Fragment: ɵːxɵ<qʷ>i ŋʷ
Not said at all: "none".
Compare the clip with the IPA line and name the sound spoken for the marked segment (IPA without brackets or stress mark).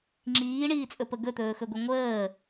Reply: ɡʷ